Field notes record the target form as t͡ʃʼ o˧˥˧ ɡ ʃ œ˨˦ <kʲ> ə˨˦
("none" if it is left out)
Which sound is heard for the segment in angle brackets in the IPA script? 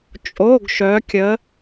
kʲ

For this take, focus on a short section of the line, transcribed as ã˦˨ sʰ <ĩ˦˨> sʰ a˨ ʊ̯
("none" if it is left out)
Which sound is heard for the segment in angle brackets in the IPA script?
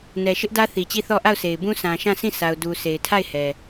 ĩ˦˨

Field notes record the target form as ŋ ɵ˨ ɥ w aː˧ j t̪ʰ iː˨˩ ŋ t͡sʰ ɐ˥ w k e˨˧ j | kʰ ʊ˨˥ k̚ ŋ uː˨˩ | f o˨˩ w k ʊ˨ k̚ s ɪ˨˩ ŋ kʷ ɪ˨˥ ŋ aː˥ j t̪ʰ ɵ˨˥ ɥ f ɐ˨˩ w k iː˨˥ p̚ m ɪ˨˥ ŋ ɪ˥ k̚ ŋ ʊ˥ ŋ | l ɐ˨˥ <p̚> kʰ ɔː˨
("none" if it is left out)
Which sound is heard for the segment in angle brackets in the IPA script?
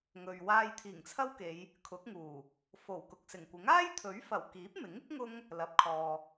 p̚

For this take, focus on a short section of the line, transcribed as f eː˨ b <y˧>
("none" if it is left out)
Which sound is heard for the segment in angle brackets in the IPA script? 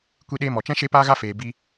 i˧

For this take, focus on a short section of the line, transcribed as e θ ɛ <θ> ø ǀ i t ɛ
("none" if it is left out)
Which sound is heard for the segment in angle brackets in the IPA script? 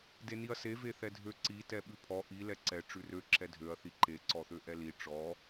dʱ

